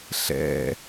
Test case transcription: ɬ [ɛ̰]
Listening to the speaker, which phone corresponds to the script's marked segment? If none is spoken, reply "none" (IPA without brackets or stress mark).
ɛ̰